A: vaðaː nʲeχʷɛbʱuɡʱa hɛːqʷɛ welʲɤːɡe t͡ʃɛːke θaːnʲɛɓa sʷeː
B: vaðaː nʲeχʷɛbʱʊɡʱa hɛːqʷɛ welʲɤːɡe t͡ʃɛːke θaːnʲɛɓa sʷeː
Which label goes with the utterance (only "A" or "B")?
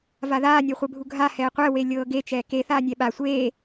A